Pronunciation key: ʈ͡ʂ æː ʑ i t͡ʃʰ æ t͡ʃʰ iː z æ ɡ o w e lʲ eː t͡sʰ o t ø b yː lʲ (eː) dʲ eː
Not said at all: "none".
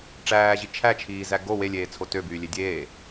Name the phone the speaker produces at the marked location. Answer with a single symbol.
e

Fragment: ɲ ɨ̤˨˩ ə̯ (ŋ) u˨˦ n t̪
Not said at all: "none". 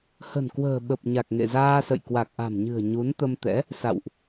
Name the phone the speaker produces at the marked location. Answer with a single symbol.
ɲ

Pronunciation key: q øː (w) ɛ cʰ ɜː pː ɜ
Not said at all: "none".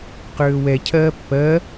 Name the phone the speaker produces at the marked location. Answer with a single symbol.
w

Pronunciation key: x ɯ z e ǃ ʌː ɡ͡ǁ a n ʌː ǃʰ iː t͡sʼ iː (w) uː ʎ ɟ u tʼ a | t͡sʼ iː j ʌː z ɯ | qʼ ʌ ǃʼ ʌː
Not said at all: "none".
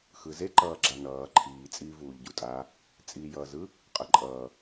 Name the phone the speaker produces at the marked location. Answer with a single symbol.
v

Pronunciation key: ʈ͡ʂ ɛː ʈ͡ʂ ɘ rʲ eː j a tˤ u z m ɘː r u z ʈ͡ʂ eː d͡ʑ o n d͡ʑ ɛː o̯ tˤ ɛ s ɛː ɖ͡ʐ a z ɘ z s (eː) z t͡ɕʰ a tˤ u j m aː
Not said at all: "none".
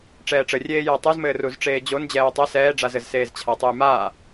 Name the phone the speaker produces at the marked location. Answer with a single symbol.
eː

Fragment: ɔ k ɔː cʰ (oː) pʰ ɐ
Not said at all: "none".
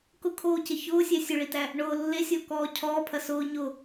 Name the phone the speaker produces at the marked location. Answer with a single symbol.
ɔː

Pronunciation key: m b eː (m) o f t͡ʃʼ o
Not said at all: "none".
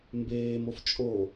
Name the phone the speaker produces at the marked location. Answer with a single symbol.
m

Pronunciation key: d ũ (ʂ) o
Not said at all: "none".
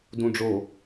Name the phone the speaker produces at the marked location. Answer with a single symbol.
ɖ͡ʐ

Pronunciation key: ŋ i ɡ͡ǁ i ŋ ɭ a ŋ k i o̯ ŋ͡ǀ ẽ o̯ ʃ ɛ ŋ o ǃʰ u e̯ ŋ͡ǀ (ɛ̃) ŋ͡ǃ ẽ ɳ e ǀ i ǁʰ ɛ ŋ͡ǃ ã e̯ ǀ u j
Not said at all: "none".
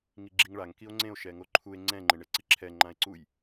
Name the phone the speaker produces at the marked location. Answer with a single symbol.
ɛ̃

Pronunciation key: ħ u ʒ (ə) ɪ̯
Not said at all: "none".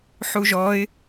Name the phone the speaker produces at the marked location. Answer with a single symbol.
ɔ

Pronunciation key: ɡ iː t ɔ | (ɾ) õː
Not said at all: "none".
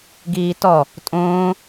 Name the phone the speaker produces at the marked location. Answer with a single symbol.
tʼ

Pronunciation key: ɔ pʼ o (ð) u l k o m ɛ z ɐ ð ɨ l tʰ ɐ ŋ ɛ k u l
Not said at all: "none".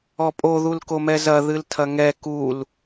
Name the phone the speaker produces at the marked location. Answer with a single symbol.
ð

